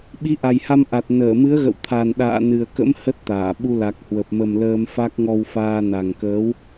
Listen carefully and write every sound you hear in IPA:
ɓ i˨˦ ʔ a˨˩ j h a˧ m ʔ a˨˩ t̚ n əː˧˩ m ɨ˨˦ ə̯ ɣ ə̰˧˨ w t̪ʰ a˨˩ n ɗ a̰ː˧˨ n ɨ˨˩ ə̯ k ə̰˧˥ m h ə˦˥ t̚ t̪ aː˧˩ ɓ u˧ l a˨˩ k̚ h w ə˨˩ p̚ m ə˨˩ m l əː˧ m f a˦˥ k̚ ŋ ɔ˧ w f aː˧ n a˨˩ ŋ k əː˨˦ w

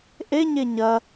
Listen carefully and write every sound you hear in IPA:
ʔ e ɲ e ɲ ɐ

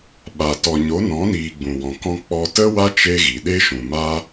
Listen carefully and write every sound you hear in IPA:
ɓ a˨ t ɔ˨ ɲ o˨˦ n ɔ̃˨˦ n iː˨ ɡ͡b ũ˨ w ɔ̃˨ k ɔ̃˧ k͡p ɔ˧ t ə˦ w a˦ t͡ʃ e˦ ɣ i˨ ɗ e˦ ʃ ũ˨ m a˦

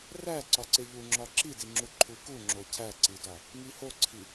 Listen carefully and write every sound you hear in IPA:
r æ ǀ ɒ ǀ e ʎ u ŋ͡ǁ ɒ ǁ i d i ŋ͡ǁ u ǃʰ u k u ŋ͡ǁ o cʰ æ ǀ i d ɒ | ŋ i h o ǀʰ i

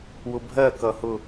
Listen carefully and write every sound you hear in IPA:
w ʊ bʱ ɜ k ʌ h ʊ

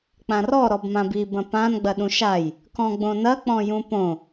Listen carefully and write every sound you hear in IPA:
k͡p ã r ɔ ɾ ɔ b m ã b i b ɐ̃ p ã n ɡ͡b ɐ ɗ ũ ʃ a j | k ɔ̃ ɡ͡b õ n ɐ k͡p ɔ̃ j ũ p õ

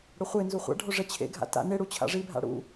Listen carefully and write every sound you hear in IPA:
ɽ ʊ χʷ e n z u χʷ a̰ ɖʱ o ʐ ɛ t͡ɕʰ ḛ ɡʱ a̰ t a̰ n ɪ ɽ u t͡ɕʰ a̰ ʐ i bʱ a̰ ɽ ṵ

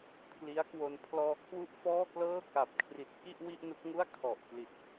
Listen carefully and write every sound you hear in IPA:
pʰ l i˦˥ a̯ k w o˧ n pʰ l ɔː˧ kʰ w u˥˩ ʔ f ɔː˥˩ k l ɤː˥˩ k a˨˩ p̚ kʰ r i˨˩ t̚ k i˥˩ ʔ w i˥˩ ʔ n u˦˥ k̚ ŋ u˥˩ a̯ kʰ ɔ˨˩ ʔ k l i˨˩ t̚

